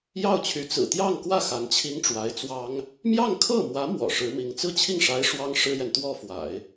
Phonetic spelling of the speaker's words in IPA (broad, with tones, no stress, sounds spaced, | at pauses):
j ɑ˥˩ ʊ̯ t͡ɕʰ y˧˥ t͡s ɹ̩˨˩ t̪ j ɑ˥˧ ŋ k w ä˥˩ x a˧˥ n t͡ɕʰ i˥ ŋ ʈ͡ʂ w a˧˥ ɪ̯ t͡s w ɑ˥ ŋ | m j ɑ˥˧ ŋ kʰ ɤ˥˩ m w ä˧˥ m w ɔ̰˨˩ ʂ ɻ̩˧˥ m i˧˥ ŋ t͡s ɹ̩˥ t͡ɕʰ i˥˩ ŋ ʂ a˧˥ ɪ̯ ʂ w ɑ˥ ŋ ʂ ɻ̩˥ j ɛ˨ n t̪ w ɔ˥˩ f w a̰˨˩˦ ɪ̯